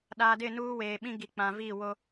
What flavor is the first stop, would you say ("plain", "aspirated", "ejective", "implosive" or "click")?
implosive